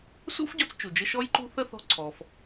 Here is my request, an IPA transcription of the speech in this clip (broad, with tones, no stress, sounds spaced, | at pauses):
s ṵ˥ f ɟ ɔ˧ t͡s t͡ʃ u˩ d͡ʒ ə˧ ʃ ɔ˥ j ǃ ṳ˥ θ ə˥ θ ɔ̤˧ ǀʰ ɔ˩ f